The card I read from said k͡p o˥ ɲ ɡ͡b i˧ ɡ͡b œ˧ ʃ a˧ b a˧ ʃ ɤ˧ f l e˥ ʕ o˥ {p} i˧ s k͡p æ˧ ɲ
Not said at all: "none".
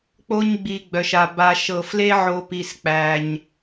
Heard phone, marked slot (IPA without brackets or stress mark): p